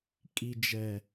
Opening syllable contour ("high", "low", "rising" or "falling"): low